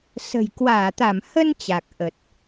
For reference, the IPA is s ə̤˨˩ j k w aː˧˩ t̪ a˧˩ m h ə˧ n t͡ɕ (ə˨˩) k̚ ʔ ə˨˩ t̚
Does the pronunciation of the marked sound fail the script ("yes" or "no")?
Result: yes